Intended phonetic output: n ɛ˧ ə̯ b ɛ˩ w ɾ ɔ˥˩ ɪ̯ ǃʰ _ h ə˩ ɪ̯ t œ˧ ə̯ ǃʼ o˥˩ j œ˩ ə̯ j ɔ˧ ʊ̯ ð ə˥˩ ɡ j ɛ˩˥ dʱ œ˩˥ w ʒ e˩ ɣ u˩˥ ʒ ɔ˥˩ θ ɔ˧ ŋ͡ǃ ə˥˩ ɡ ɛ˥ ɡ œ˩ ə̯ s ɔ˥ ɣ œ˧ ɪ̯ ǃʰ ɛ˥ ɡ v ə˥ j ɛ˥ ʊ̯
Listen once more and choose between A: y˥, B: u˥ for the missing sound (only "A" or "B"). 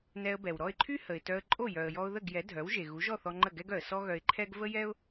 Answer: A